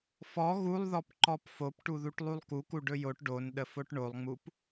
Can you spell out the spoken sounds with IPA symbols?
f ɔ ɣ u lˠ ð ɔ p ǃ ɔ p f o p ʈ u ð u ʈ lˠ u lˠ k u k u ɖ ɵ j o ʈ ɖ o n ɗ ə f o ʈ ɳ o lˠ ŋ͡m u p

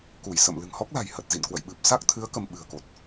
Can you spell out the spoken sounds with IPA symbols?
k u˧˩ j s ə̰˧˨ m l ɨ̤˨˩ ŋ h ɔ˦˥ k̚ l a̤˨˩ j h ə˨˩ t̚ z ḭ˧˨ n k w ə̰˧˨ j ɓ ɨ˨˩ p̚ s a˦˥ k̚ t̪ʰ ɨ˨˦ ə̯ k ə˧ m ɓ ɨ̤˨˩ ə̯ k o˨˩ t̚

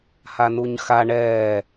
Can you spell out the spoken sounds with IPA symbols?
h a n u ɲ x a ɳ ɛː

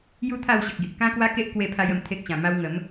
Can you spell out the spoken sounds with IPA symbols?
j u˦ t̪ʰ a˥˧ w ɕ ə˨ k̚ ɡ i˨ ʔ k ã˦ k w a˦ k e˦ ʔ k w e˥˧ pʰ a˦ j ə˧ m t̪ʰ e˦ k̚ ɕ ã˨˩ m a˧ w ŋ ə˨˦ m

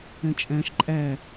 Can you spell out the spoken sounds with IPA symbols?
ɛ̃ t͡ʃʼ æ̃ ʃ ǃʼ æ

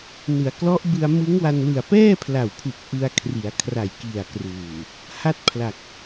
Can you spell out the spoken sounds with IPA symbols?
n ɯ˩˦ a̯ k l ɔ˦˥ ʔ b ɯ˧ a̯ m ɯ˦˥ ŋ w a˧ n l ɯ˨˩ a̯ p ɛː˥˩ pʰ l a˨˩ w pʰ u˨˩ k̚ ʔ ɯ˧ a̯ kʰ r i˩˦ a̯ kʰ r a˨˩ j k i˨˩ a̯ k r uː˨˩ | h a˥˩ t̚ pʰ l a˨˩ k̚

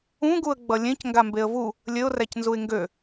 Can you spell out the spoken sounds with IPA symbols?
ũ ɡ u ə̯ ɡ͡b ʌ lʲ ẽ c ŋ ɡ a m b e ə̯ v u | lʲ ɘ ʊ̯ r æ c n z u ɪ̯ ŋ ɡ ø

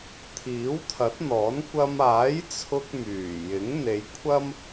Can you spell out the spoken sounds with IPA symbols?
t̪ʰ iː˨˥ w t̪ʰ ɐ˨˥ t̚ n̪ ɔː˨˥ n kʷ ɐ˧ m aː˨˥ j t͡sʰ ʊ˧ k̚ m yː˨˩ j ɪ˨˥ ŋ n̪ e˨˧ j kʷʰ ɐ˥ m

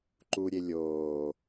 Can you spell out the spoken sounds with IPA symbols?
ǃ u ɾʲ e lʲ oː

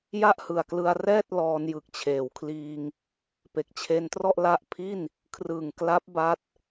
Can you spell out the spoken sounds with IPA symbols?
j a˥˩ ʔ h ɯ˨˩ a̯ k l ɯ˧ a̯ r ɛː˥˩ t̚ l ɔː˧ n j ɯ˨˩ k̚ t͡ɕʰ eː˩˦ w kʰ l iː˧ ŋ | p e˨˩ k̚ t͡ɕʰ e˧ n t r ɔ˥˩ ʔ l a˦˥ ʔ pʰ i˥˩ n | kʰ r ɯ˨˩ ŋ k l a˦˥ p̚ b a˦˥ t̚

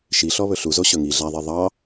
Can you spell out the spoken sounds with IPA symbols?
ʃ i ɬ ɔ β ɵ ɬ u z o ɕ ɵ ŋ i ɮ æ ðˤ e ðˤ ɑ

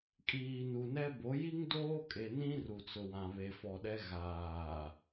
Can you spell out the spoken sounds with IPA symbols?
kʼ iː˨ n u˨ n ɛ˦ b o˨˦ j i˦ ŋ d oː˦ kʼ e˨ n ĩ˦ r u˨ t͡s ʊ˨ w ã˨ β e˨ f ɔ˨ ɗ ɛ˦ ɣ aː˨

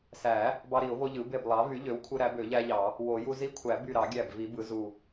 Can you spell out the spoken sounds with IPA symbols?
s æ˨˩˦ | b ɑ˦ ɾ i˨˩˦ ʊ̯ v o˦ ʎ ɯ˩˥ b e˧˩ b lˠ ɑ˩˥ v y˩˥ ʎ ø˩˥ w kʷʰ ɯ˦ ɾ æ˩˥ b ø˨˩˦ ʎ æ˦ ʎ ɑ˨˩˦ | w o˨˩˦ j u˦ z i˦ kʷʰ æ˨˩˦ b y˧˩ ɾ ɑ˨˩˦ ɡʲ æ˧˩ b v i˨˩˦ b ɯ˩˥ z u˧˩

